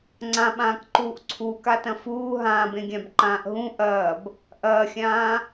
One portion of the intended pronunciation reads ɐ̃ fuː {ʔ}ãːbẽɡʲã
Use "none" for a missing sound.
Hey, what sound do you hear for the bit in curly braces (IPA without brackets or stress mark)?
ɦ